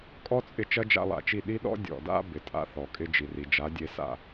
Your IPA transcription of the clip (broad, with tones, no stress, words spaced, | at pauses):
kʼɔ˦t͡sʼɪ˧ t͡ʃɐ˦d͡ʒa̰˧lˠa̰˨t͡ʃi˦˨ ɗi˦ɗɔ̰˦ dʲɔ̰˨da̰˦ bɪ˨tʼa̰˦θɔ˨kʼɪ˦ d͡ʒi˨ri˨d͡ʒa˨˦dʲe˧ sa̰˦˨